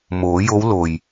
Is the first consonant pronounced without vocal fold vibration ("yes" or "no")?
no